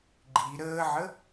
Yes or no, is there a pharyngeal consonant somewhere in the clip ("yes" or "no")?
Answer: yes